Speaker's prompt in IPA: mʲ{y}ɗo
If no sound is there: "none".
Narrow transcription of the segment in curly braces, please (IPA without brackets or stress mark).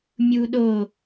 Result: u